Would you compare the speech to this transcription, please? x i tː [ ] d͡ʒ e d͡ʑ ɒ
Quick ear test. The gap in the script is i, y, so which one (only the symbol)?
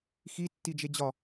i